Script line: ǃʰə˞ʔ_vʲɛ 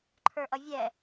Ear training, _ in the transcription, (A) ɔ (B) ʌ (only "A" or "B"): B